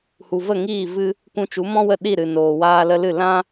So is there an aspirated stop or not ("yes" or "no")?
no